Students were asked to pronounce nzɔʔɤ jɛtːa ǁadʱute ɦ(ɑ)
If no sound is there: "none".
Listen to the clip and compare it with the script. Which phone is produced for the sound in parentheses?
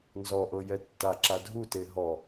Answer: ɔ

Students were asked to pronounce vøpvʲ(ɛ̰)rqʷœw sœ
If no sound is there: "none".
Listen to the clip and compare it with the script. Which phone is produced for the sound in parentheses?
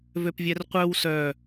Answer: ɛ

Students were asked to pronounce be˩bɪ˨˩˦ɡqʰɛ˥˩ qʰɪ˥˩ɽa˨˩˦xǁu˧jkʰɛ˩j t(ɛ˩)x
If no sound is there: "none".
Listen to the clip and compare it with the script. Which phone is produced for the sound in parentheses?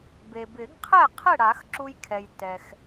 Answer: ɛ˩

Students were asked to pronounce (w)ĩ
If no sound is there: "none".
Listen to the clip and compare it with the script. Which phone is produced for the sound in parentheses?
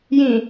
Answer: j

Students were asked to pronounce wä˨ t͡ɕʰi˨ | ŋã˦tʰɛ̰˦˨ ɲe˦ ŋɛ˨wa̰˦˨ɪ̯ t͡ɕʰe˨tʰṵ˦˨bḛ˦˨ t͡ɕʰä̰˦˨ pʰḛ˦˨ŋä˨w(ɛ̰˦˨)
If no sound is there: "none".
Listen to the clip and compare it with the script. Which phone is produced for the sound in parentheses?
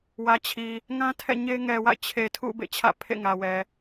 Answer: ɛ˨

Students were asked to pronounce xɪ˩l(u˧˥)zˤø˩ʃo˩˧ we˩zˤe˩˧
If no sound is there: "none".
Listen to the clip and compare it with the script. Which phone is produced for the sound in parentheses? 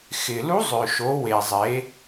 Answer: u˧˥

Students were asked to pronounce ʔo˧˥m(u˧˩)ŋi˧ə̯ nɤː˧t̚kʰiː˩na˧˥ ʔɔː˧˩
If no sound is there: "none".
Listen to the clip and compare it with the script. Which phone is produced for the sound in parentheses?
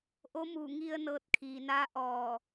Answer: u˧˩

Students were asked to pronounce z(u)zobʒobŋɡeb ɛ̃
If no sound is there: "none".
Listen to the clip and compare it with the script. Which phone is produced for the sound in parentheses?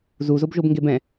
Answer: u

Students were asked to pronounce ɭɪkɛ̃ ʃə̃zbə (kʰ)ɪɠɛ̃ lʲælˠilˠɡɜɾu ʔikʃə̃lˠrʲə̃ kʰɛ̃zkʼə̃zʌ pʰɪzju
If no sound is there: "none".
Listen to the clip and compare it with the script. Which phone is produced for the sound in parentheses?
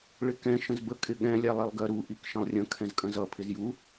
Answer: kʼ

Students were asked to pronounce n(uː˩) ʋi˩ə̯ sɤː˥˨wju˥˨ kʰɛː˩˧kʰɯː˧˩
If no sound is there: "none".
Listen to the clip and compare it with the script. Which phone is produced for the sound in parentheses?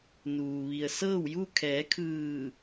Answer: uː˩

